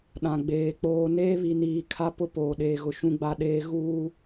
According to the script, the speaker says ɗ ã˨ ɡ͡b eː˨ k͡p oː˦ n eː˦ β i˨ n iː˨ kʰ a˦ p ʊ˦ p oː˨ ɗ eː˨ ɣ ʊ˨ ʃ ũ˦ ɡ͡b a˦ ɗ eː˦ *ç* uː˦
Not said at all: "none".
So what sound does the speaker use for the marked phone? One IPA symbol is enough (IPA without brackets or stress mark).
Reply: ɣ